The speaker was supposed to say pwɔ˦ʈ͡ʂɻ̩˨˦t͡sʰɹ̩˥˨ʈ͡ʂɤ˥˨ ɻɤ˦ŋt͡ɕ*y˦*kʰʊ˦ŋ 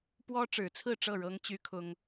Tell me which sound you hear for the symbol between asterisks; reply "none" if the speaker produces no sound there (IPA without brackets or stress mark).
y˦